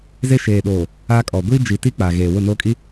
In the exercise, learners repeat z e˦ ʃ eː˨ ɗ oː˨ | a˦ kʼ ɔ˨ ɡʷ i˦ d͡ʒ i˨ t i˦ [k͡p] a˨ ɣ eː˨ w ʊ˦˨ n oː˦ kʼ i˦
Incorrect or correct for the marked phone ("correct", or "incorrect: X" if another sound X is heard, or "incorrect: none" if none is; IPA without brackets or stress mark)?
correct